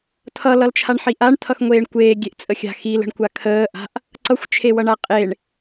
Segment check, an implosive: absent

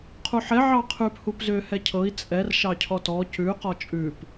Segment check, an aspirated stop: present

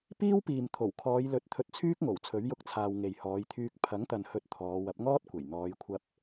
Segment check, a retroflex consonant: absent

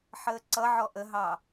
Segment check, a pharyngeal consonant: present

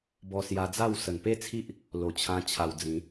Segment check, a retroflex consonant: absent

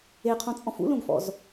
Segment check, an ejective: present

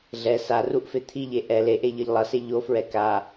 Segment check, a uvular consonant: absent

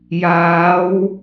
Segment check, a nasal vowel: absent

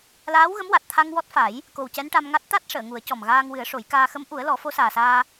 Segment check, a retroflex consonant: present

